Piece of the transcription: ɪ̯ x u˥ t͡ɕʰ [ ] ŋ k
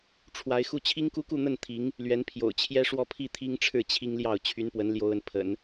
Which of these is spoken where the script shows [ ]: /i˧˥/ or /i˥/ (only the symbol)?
i˥